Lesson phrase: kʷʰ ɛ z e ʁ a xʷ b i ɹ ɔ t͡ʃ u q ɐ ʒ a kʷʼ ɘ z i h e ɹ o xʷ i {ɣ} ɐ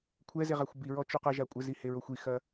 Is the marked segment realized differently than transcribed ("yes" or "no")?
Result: yes